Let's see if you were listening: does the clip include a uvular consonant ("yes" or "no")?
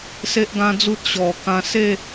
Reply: no